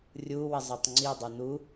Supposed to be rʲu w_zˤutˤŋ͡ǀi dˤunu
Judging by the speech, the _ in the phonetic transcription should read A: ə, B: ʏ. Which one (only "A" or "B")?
A